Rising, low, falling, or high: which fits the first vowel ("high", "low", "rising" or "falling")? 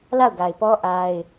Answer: falling